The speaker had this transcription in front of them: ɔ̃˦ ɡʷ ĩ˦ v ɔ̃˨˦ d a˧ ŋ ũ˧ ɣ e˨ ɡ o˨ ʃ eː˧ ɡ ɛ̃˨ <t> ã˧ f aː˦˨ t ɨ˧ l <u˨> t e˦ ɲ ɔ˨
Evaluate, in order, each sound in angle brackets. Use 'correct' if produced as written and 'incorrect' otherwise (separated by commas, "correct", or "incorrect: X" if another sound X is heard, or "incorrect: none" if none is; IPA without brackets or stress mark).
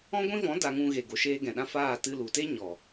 incorrect: ɗ, correct